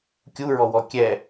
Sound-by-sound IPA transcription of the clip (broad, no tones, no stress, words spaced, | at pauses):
kʲuɹɔwɔ kʲɛ